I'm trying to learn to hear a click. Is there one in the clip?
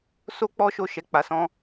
no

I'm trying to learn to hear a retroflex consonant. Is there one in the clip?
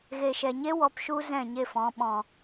no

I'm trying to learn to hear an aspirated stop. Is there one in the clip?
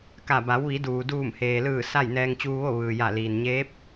no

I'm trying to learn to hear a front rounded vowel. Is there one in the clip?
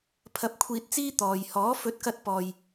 no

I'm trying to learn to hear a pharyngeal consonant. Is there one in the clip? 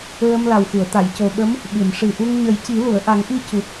no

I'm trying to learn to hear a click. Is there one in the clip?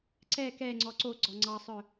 yes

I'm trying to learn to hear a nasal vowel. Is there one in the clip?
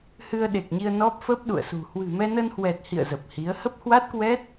no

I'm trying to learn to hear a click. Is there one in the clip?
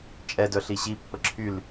yes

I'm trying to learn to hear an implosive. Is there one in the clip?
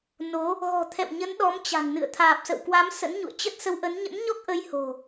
yes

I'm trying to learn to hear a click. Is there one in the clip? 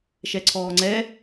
yes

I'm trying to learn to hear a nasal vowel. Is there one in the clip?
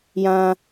yes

